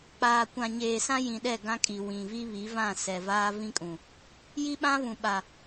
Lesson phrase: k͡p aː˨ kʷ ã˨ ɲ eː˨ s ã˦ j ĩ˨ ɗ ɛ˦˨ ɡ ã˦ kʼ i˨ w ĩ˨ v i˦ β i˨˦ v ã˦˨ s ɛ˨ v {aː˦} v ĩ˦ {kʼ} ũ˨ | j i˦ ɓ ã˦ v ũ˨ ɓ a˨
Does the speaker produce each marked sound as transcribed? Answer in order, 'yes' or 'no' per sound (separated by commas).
yes, yes